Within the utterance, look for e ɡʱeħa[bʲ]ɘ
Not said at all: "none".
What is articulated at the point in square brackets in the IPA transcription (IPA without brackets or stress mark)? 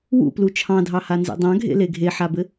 b